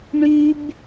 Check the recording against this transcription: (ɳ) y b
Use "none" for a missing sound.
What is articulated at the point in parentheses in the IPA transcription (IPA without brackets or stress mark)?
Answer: ɳ